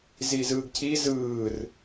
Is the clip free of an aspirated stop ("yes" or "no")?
no